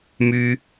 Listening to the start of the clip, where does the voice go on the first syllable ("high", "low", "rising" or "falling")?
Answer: high